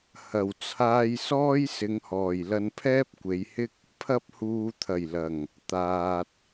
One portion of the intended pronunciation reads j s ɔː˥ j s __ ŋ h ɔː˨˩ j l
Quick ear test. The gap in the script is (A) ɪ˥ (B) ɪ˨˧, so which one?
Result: B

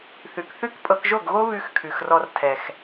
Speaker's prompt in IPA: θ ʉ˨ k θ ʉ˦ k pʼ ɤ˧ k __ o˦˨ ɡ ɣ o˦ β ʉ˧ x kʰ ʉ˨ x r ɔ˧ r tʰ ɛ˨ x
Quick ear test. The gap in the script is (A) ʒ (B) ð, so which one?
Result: A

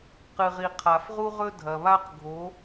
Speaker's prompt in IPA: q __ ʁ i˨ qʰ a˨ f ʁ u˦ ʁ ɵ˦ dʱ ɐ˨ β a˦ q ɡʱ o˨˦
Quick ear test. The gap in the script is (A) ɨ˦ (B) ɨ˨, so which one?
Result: B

